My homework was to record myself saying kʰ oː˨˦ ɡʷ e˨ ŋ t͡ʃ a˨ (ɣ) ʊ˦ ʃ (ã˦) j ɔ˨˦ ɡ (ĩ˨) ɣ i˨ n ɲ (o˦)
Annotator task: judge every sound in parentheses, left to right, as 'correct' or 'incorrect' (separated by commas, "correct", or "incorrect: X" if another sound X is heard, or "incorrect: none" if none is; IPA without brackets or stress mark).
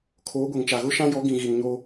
correct, correct, correct, correct